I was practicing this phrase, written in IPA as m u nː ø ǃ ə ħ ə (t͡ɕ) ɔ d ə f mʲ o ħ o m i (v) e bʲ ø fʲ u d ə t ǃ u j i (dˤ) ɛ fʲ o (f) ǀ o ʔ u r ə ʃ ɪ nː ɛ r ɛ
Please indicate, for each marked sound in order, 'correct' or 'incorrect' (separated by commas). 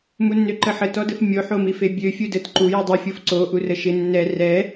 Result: incorrect, incorrect, correct, correct